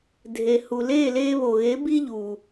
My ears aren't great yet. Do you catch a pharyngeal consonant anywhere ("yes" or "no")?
no